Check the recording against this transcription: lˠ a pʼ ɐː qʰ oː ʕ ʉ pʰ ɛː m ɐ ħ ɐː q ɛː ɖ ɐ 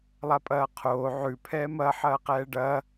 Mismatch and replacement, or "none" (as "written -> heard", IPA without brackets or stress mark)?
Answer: none